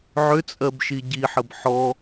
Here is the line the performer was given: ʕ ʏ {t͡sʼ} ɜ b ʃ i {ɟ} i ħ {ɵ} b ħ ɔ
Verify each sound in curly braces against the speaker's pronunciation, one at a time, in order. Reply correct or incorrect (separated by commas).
correct, correct, incorrect